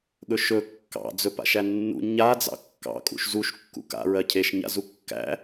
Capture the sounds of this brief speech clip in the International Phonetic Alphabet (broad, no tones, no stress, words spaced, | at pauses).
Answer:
ɠɵʃɵ kːɑ̰ d͡zɵpa̰ʃænːṵ ɲa d͡zɑ̰kːɑ̰ kʼṵʃzuʃ kːṵka̰ ɹɜcʰeʃ ɲa̰zukːæ̰